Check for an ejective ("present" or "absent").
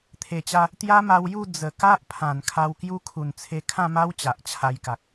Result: absent